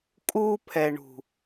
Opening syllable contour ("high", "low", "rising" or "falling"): high